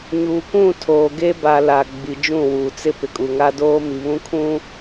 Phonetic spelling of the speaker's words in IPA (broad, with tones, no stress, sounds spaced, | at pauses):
ɲ uː˨ kʷ ũ˦˨ tʰ oː˨ ɡ e˦ b a˨ l a˨ ɡ͡b i˨ d͡ʒ ũ˦˨ w uː˨ t͡s ɪ˦ p ɪ˨ kʼ u˨ ŋ a˦ d oː˦ m i˨ β ũ˦ kʰ ũ˦